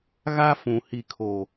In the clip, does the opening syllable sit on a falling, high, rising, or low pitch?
high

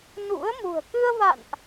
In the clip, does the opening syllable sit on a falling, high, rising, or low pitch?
rising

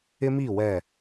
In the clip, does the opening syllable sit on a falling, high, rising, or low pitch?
high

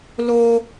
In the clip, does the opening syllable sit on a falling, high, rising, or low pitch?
high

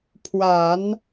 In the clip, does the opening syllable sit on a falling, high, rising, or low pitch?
low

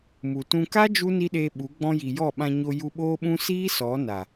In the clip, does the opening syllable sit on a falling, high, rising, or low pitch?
low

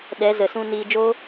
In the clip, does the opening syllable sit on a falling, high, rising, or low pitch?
rising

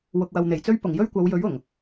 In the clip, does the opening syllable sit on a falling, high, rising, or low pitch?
low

